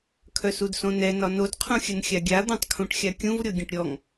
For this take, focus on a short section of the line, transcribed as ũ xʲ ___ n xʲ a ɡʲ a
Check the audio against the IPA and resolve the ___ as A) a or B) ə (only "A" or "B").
B